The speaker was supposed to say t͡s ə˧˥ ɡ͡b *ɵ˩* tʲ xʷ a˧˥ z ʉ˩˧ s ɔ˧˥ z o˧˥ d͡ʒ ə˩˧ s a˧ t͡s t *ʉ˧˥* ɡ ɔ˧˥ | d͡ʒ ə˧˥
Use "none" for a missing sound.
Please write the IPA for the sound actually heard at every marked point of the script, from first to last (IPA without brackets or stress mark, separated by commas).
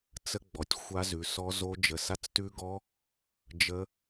ɔ˩, ʉ˧˥